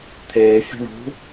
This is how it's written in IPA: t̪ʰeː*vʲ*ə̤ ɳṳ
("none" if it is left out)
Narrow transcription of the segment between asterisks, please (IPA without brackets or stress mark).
fʲ